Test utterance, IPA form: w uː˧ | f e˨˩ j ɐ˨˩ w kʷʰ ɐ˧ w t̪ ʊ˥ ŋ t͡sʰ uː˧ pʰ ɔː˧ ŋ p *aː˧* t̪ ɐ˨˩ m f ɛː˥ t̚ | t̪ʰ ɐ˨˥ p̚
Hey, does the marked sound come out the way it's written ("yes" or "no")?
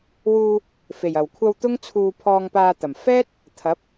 yes